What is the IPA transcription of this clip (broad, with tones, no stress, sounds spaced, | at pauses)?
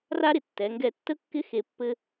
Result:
r a˥ ɾ ɪ˩ tː ɛ˩˧ ŋ ɡ ɛ˧ tː ə˥ kː ɪ˥ x e˧ pː ɘ˥